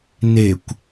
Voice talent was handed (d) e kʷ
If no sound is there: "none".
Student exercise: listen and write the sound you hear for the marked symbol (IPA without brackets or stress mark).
n